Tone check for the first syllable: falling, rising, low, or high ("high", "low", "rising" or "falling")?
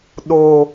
high